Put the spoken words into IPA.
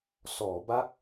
sɔː˩˦ ba˦˥k̚

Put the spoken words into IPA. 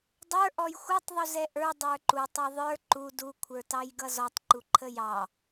dˤə˞ ʔɔjxʷʌtˤ ðˤuzɛʔə˞ dˤə˞ǃu tˤɑðˤə˞ ǃu du kʷʰə˞tɑjɡʌzɔtˤ ǃuǃʰəjɑ

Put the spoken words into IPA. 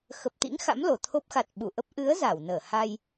xə˨˩p̚t̪ḭ˧˥ŋxa̰˧˥m lo˨˩t̪ʰo˦˥p̚ xa˨˩t̚ ɓu˧˩ʔə˦˥p̚ ʔɨ˨˦ə̯ za˧˩wnəː˧˩ ha˧j

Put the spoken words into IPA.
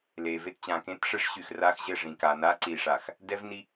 le˨ve˦tt͡ɕã˨ kẽ˦tʂɘ˦ʂɕy˨x ra˦xʑɘ˦˨ʐĩ˨ka˨ na˦ǀi˨ʂa˨x | dɛ˦vni˦

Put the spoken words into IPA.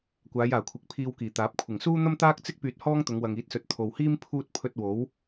kʷaː˨˧jaː˨˩kʷʰɪ˨˥k̚ pʰiː˧wkiː˨˩t̪aː˨˥p̚ kʷʰɪ˨˩ŋsuː˥n̪ɐ˥mt̪aː˥k̚ t͡sɪ˥k̚ pyː˧t̚hɔː˥ŋt̪ʊ˨˧ŋ wɐ˨ŋiː˨˥t̚sɵ˨˥t̚ t̪ʰo˨whiː˥m pʰuː˧t̚ pʰɵ˧t̚ wo˨˥w

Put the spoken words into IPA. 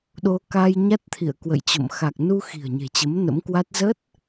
ɗo˧ ka˧j ɲa˦˥t̚t̪ʰḭ˧˨ə̯kwə̰˧˨jt͡ɕo̰˧˨m xa˨˩k̚nu˧xi̤˨˩ə̯ ɲe̤˨˩t͡ɕə˨˦mnə̰˧˥mkwa˦˥t̚ zə˦˥t̚

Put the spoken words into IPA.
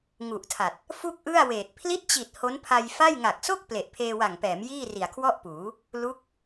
ŋu˨˩ʔtʰa˨˩t̚ | fu˥˩k̚ʔɯ˥˩a̯weː˨˩t̚ pʰli˦˥t̚t͡ɕi˨˩t̚ ho˦˥npʰa˧jfa˥˩j ŋa˨˩k̚so˥˩k̚ ple˨˩ʔpʰeː˧ wa˨˩ŋpɛː˩˦m jiː˥˩ri˨˩a̯kʰwɔ˥˩ʔpuː˩˦ | lu˦˥k̚

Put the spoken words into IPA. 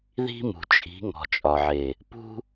ði̤˦mṳ˨ t͡ʃʼi̤˨˦ ŋɔ̤˨t͡ʃʼɒ˨ʕe˨ | pṳ˦

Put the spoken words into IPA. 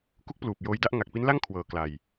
ku˦˥k̚pluː˨˩p̚ joː˧jda˥˩ʔ ŋa˨˩k̚pi˦˥nla˥˩ŋ kʰwɤː˨˩kla˨˩j

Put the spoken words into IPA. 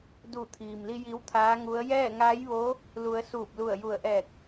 du˧˩t̪ʰiː˩mli˧ ji˧˥wt̪ʰaː˧˥ŋu˧˥ə̯ jɛː˥˨ŋaː˧˥jʋo˧˥ | lu˩˧ə̯ suː˧˩p̚lu˧˩ə̯ju˧˩ə̯ʔɛː˧˩k̚

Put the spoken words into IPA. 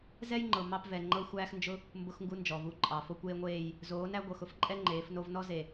zɛ˦jŋ͡ǃɤ˨ mɑ˦pvɛ˨ ŋ͡ǃɤ˦xʷæː˦xnd͡ʒʊ˦ | mbʊ˦xŋɡu˦nd͡ʒɔ˨vu˦˨ ǃʼɑ˨ fo˦kʷeː˦ŋʷeː˦˨j | zoː˨˦næ˦ ɡʷɤ˨xʊ˦fǃʼɛ˦ ŋ͡ǃeː˨˦fno˦v nɔ˦ze˨

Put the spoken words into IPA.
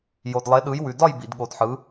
jo˨dlˠe˨˦ɗɯ˨˦j wʉ˨dɒ˥˧j bḭ˨dɠo˨dħɯ˨˦

